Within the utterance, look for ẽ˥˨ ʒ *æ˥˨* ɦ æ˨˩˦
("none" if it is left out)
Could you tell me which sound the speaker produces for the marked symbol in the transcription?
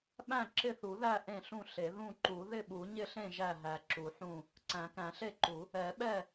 æ˥˨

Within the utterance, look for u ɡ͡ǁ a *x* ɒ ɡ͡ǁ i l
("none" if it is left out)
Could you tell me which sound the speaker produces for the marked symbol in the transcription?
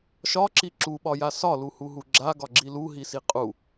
ɡ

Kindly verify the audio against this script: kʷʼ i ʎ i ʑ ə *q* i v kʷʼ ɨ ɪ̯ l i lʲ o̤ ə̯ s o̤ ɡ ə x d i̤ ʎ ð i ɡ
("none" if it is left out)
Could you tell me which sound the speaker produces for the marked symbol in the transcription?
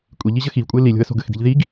x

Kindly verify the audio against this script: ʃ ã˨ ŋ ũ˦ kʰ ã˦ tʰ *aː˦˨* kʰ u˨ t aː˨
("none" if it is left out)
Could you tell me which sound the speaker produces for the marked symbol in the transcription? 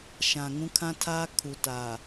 aː˦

